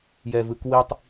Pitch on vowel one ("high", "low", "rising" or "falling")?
low